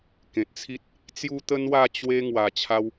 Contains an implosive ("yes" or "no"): no